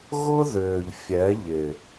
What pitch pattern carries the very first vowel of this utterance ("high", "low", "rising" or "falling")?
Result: high